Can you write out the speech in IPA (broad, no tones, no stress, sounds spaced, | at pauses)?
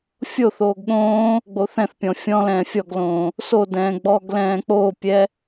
fʲ o θ oː ɡ ɠ õː | ɡ͡b o θ ɛ̃ θ pʲ ɔ̃ fʲ ɔ̃ l ɛ̃ː fʲ ɔ ɡ l õː | s o d ɛ̃ː ɡ͡b ɔ ɡ l ɛ̃ː k͡p oː pʲ ɛ